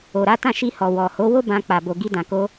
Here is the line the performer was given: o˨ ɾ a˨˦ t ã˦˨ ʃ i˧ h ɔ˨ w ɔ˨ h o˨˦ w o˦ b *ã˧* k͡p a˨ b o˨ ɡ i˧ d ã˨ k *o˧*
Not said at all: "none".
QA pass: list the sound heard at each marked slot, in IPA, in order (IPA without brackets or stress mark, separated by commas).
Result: ã˧, o˧